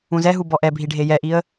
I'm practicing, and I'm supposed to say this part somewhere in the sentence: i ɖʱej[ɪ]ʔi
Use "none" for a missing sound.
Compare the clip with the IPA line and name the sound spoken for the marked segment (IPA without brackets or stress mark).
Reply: ɛ